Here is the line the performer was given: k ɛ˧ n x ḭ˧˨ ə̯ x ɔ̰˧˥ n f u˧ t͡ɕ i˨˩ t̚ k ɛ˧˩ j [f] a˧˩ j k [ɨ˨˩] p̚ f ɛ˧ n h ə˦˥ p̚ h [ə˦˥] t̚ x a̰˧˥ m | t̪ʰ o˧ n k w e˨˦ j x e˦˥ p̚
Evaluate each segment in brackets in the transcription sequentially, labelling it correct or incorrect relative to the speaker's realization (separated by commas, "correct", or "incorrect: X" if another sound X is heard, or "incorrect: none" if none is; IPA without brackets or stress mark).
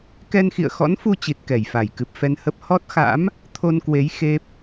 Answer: correct, correct, incorrect: ɔ˦˥